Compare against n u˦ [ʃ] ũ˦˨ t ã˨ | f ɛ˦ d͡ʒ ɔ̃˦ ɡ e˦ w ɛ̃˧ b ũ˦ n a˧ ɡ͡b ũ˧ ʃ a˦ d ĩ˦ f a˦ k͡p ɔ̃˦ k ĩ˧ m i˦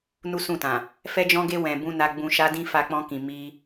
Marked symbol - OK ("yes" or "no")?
no